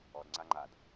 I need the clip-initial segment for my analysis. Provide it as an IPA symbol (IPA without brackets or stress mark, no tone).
ɔ